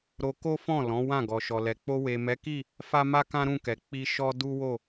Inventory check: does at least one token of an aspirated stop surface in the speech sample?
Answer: no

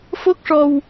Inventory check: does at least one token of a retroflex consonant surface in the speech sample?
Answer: yes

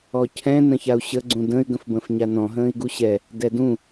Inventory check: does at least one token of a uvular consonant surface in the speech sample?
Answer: no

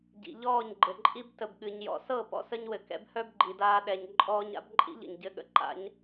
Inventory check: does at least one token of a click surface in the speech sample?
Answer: yes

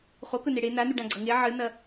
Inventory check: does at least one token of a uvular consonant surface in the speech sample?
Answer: yes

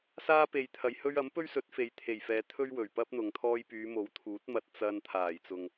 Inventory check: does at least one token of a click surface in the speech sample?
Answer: no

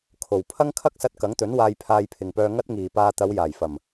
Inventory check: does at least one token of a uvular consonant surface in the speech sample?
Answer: no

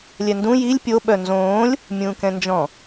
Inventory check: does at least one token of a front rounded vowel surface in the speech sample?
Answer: yes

